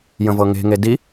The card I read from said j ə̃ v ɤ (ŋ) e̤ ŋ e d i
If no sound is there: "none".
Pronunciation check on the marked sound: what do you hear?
ŋ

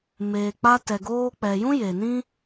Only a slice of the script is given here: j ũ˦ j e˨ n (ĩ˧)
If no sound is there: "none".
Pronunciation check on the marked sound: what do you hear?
ĩ˦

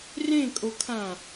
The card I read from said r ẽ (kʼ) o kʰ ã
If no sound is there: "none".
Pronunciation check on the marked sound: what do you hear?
kʼ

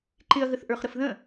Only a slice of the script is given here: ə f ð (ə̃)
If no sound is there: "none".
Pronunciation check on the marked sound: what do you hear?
ə̃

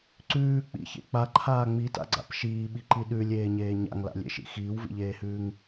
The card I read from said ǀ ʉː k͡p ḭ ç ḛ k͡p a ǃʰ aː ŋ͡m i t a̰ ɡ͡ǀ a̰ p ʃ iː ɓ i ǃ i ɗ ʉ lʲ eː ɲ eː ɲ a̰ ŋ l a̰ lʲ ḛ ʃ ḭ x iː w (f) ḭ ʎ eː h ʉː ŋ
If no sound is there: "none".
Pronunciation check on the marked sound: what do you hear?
v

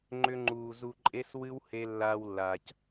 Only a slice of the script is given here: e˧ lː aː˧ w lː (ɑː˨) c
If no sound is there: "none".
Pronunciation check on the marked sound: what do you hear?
aː˨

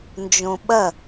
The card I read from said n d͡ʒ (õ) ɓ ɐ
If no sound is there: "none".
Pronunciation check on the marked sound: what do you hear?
õ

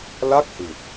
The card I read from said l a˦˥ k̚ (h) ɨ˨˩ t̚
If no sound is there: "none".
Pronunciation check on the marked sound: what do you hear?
h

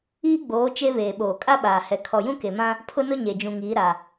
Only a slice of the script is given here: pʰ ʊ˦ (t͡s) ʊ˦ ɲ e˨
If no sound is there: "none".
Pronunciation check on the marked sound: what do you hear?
n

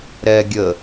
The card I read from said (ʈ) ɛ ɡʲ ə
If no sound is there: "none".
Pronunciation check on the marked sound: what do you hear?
ɾ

